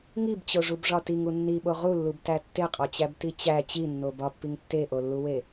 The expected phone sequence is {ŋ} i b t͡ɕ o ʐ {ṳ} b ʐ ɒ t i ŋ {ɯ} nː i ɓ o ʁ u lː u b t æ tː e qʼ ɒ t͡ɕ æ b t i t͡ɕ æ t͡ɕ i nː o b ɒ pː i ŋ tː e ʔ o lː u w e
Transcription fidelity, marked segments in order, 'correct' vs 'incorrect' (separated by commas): correct, incorrect, incorrect